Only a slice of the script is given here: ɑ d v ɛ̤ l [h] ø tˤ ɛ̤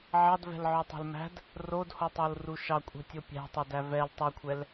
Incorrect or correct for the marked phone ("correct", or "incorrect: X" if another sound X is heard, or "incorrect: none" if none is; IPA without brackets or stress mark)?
incorrect: ʕ